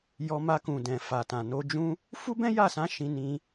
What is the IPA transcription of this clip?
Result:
j ɔ˧ m a˧ k ũ˨ d ɛ̃˨ f a˨ t ã˨ n o˧ d͡ʒ ũ˧ | f u˦ b ɛ̃˦ j a˦˨ s ã˨˦ ʃ ĩ˧ n ĩ˧

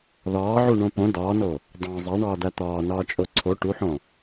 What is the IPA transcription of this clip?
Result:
ð ɒː ʕ u ɳ õ p õ d ɒː n o | dˤ æ̃ zˤ æ ɳ ɒː d æ t̪ ɒː n ɒː t͡ʃʼ o ǀʰ o ʈ u ħ õ

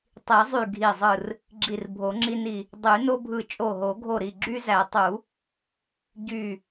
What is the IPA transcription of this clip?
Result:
tˤ i˨˩˦ zˤ y˧˩ ɡʱ i˧˩ zˤ ɯ˧˩ r | ɡ͡ǁ i˧˩ r bʱ o˨˩˦ ŋ͡ǁ i˦ n i˧˩ | dˤ y˨˩˦ n o˦ bʱ ɯ˧˩ t͡ʃʼ o˧˩ ɦ o˨˩˦ ɡʱ o˧˩ ɾ i˧˩ ɡ͡ǁ y˦ z æ˨˩˦ tˤ u˨˩˦ | ɟ y˧˩

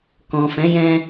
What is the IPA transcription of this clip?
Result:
k ɔ̃˨ f ɛ̃˨˦ j ɛ̃˧

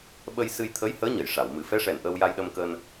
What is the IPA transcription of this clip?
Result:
ɓ ə˧ j s ɨ˧ j t̪ʰ ə˧˥ j h əː˧˥ ɲ ə˨˩˨ j ʂ a˨˩˨ w m ɨ˨˩˦ f ɛ˧˥ ʂ ɛ˨˩ n ʔ əː˧ w j a˧ j ɗ ə˧ m k əː˧ n

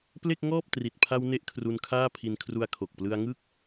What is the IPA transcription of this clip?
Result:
p l e˥˩ k̚ ŋ ɔː˥˩ p̚ t r i˨˩ t̚ pʰ a˧ w n e˥˩ ʔ kʰ r u˧ n kʰ aː˥˩ pʰ i˧ n kʰ r u˧ a̯ kʰ o˨˩ k̚ p l ɯ˧ a̯ ŋ ɯ˥˩ k̚

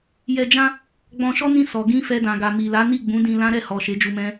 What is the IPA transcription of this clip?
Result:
j ɛ˧ d͡ʒ ã˦ | ɡ͡b ɔ̃˧ ʃ ɔ˦ n ĩ˦˨ s ɔ˨ ɡ ĩ˧ f ɛ˧ d ã˨ ɡ a˨ m i˨ l a˨˦ n i˦˨ ɡ͡b ũ˨˦ d ĩ˧ l ã˦ ɾ ɛ˦˨ h ɔ˨ ʃ e˨˦ d͡ʒ u˧ m ɛ̃˦

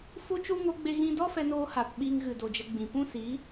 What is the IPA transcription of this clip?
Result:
f u˦ t͡ʃ u˦ ŋ o˦ ɡ͡b e˦ ɣ ĩ˦ d ɔ˦ f ɛ˧ n oː˧ h a˨ p ɓ iː˧ ŋ ɣ ɨ˨ d o˨ d͡ʒ ə˧ ɡ͡b ĩ˨ p ũ˦ s i˨˦

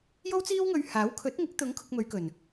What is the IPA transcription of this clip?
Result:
j o˥ w t͡s iː˥ w ŋ ɵ˧ ɥ h aː˨˥ w kʰ ɵ˨˥ t̚ ŋ ɪ˨˥ k̚ t̪ ʊ˨˥ ŋ kʰ ʊ˧ k̚ m ɵ˨˧ ɥ k ɵ˨˩ n

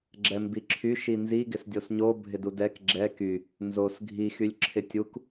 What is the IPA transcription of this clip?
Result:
ɡ͡ǁ ɛ m b i ǁʰ y ʃ i n z i ɡ ɪ s dʲ o s ɲ o bʱ ɪ d u d ɛ k ɡ͡ǁ ɛ k y | n z o s ɡʱ i x y lʲ ǁʰ ɪ tʲ u k

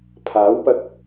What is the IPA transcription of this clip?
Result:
pʰ aː˨˥ w p ɐ˧ k̚

